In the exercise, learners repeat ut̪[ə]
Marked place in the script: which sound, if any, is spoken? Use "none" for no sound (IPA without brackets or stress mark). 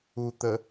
ə